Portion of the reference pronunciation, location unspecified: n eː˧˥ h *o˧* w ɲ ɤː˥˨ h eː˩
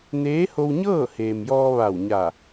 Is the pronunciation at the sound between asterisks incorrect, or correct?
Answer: correct